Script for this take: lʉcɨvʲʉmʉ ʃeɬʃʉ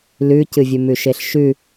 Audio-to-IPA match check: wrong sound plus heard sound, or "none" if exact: none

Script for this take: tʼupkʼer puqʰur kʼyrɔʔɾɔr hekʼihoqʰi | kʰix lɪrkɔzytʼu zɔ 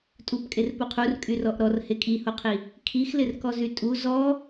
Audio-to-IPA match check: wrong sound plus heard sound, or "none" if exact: none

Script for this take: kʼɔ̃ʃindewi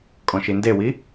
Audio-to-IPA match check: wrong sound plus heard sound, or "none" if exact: none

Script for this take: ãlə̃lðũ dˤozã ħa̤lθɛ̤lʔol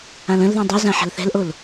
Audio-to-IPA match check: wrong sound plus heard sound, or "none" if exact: none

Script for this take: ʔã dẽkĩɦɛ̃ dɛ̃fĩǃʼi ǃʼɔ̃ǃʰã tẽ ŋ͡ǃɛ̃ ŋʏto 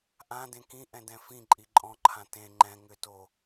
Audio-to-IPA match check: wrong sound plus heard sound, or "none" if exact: ɦ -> ʔ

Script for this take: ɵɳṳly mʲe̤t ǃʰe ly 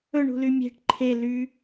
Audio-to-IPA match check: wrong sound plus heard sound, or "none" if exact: t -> ʈ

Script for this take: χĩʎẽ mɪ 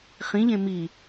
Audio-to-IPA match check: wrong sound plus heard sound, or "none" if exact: ɪ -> i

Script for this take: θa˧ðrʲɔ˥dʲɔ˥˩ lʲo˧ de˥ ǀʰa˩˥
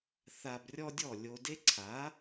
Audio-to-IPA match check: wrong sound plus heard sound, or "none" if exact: ð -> b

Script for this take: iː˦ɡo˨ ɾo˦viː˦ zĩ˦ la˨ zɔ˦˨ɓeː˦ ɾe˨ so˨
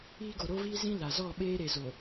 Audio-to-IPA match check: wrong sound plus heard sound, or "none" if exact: s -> z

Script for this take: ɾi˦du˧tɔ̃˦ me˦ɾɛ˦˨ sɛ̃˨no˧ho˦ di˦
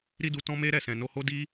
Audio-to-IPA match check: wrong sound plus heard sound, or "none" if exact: none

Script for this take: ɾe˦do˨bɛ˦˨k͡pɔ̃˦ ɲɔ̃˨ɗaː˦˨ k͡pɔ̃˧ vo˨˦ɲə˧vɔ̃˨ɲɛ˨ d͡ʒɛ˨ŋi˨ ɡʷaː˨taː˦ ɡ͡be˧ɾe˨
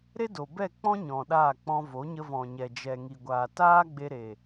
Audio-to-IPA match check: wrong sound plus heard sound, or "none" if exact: none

